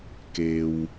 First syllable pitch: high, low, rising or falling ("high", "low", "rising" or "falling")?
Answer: low